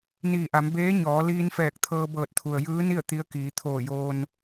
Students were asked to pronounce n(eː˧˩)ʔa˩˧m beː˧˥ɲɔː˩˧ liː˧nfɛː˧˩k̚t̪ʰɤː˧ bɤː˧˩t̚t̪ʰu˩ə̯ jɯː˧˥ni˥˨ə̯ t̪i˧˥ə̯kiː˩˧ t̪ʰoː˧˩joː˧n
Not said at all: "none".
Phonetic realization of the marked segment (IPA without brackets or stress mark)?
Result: iː˧˩